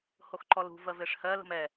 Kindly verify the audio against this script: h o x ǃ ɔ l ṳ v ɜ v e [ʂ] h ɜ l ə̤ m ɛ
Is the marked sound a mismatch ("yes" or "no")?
no